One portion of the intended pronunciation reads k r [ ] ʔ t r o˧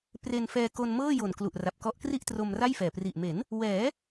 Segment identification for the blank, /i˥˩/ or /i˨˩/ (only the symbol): i˥˩